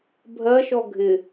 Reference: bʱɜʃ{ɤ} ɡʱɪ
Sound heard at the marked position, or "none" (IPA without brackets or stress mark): ɔ